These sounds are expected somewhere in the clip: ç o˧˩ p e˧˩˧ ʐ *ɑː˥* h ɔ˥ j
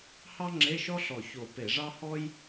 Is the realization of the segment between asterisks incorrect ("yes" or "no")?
yes